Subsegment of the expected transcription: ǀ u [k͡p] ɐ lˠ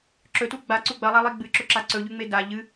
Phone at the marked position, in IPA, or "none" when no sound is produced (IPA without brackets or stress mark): ɡ͡b